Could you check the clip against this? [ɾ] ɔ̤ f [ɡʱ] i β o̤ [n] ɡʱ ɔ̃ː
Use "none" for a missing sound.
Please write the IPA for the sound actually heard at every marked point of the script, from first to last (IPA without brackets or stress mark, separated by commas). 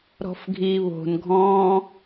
ɾ, ɡʱ, n